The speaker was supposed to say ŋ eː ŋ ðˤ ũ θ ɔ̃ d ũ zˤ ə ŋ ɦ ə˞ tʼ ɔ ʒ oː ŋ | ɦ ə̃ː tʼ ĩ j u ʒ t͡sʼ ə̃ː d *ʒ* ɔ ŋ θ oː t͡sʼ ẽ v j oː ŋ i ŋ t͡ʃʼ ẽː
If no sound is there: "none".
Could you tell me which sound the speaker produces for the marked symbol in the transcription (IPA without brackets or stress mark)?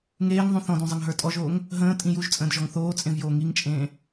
ʒ